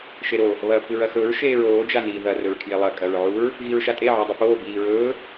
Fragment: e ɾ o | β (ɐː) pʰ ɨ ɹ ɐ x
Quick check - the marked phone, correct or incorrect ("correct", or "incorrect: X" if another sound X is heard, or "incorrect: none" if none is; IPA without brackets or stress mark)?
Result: correct